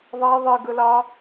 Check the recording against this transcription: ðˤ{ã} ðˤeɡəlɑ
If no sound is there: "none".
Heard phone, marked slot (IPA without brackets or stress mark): a